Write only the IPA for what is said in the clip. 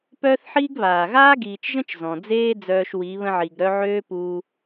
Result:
pœː˦θħiː˦ɡ βaː˨ ɣaː˦ɡiː˨t͡ʃʒə̃˦t͡ʃ zɔ̃˨ d͡zeː˦ d͡zœː˧ʃwi˨˦ βə̃˧ʕi˨ɡɾœ˧ ʕøː˦puː˧

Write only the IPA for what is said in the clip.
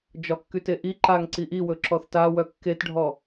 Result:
d͡ʒɒkːyteʔi ǃaŋǀi ʔiwɵ ǁɔθtawœ kːetɖʱɔ

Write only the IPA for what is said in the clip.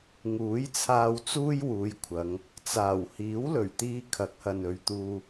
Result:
ŋuː˨˥jt͡sʰaː˧wt͡suː˥jwuː˨˧j kʷʰɐ˨˧ŋ | t͡saː˨˩w hiː˨˥wlɵ˨˩ɥt̪iː˧ kʰɐ˨˥k̚hɐ˨nɵ˨ɥt̪uː˧

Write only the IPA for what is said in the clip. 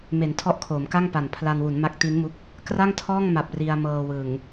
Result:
me˩˦ntʰɔ˦˥ʔkʰoː˩˦m ka˥˩ŋpa˨˩n pʰla˧nwu˩˦nma˦˥k̚ ti˦˥nmu˦˥k̚ | kra˥˩ŋtʰɔː˥˩ŋma˨˩p̚ ri˧a̯mɤː˧wɯ˨˩ŋ

